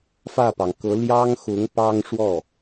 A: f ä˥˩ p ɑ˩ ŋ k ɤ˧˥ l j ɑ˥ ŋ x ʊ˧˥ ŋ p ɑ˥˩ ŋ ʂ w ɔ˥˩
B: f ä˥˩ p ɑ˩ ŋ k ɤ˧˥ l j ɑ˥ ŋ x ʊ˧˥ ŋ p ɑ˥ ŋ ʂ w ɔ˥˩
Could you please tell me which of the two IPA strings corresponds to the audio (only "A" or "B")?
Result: B